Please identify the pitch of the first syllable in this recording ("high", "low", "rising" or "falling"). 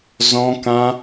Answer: high